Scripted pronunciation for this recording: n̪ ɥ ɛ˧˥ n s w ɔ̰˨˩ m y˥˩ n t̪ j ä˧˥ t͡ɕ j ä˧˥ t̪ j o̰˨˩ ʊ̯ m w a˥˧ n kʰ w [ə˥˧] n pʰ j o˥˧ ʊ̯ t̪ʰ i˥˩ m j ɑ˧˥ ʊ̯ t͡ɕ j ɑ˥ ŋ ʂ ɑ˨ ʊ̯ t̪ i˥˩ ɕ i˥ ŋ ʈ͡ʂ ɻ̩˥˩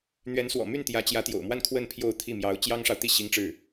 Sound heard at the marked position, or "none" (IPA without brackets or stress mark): ə˥˧